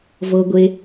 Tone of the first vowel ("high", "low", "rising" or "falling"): low